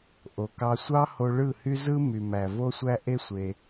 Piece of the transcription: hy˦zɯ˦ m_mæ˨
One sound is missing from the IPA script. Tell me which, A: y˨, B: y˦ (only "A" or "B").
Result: A